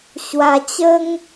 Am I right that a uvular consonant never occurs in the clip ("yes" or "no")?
yes